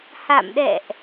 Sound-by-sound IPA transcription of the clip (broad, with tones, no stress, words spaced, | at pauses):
ha̰˧˨mɗɛ̰˧˨ʔ